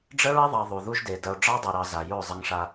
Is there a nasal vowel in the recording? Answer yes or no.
no